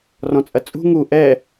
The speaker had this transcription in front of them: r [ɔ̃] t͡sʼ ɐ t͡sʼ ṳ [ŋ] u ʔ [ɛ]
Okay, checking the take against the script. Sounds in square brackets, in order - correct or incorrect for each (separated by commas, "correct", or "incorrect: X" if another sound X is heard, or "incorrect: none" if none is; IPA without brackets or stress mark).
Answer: correct, correct, correct